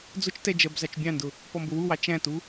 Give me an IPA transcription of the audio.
d͡zʊt͡ʃtɛ d͡ʒɜbzɑt͡ʃbʲɑ̃ndʊ | pɔmbʊwuwɑ t͡ʃæ̃tu

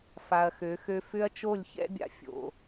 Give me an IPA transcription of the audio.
fa˨ɐ̯xø˨˦xø˦ fʏ˦ɐ̯t͡ʃo˦˨lʲçɛ̰˦bʲa̰˨ fʲo̰˨

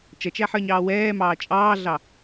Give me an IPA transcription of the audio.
t͡ʃʌt͡ʃæħə˞ɲɑː wɛːmɑː t͡ʃʼɑːɮɑ

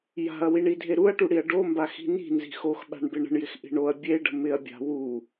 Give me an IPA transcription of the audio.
ja̤ɐ̯wiɳidʱe ɾuɐ̯ʈuɽiɐ̯ ɖombaxi̤ ni̤nzi̤ xoxɓa̤ɳbɪ ɳə̤ɳjɪxʔi̤ ɳoɐ̯ bʲeɖə̤ mɪɐ̯bʲa̤ wu

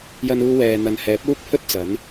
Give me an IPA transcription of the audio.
jɐ˧nuː˧wɛː˨ n̪ɐ˨nhɛː˨˥p̚ uː˥k̚ pʰɵ˥t̚t͡sɐ˨˥n

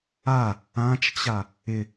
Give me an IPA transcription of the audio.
a | ãt͡ʃt͡ɕa | ɪ

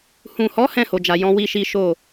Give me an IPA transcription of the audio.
hũ˨hɔ˨˦ hɛ̃˦˨ho˨d͡ʒa˨ jɔ̃˧ wi˦ʃi˦ ʃo˦˨

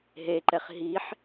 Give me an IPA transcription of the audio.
ɦeǃɛχ ɦiħ

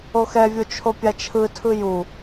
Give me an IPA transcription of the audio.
oxɛvʲo t͡ʃʰopʲat͡ʃʰɯtʰɯ ju

